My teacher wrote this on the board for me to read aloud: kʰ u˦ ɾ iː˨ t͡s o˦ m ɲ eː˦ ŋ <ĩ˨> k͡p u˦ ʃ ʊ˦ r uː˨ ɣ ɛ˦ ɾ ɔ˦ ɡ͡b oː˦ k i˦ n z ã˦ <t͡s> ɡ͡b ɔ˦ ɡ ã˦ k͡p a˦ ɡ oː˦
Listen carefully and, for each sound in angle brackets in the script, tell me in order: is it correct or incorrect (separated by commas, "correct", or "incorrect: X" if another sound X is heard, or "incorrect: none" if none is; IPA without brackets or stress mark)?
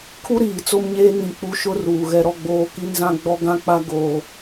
correct, incorrect: none